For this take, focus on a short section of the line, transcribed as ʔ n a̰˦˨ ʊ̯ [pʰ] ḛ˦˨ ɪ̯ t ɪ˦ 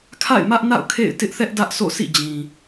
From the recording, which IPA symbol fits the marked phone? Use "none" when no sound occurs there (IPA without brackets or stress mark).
kʰ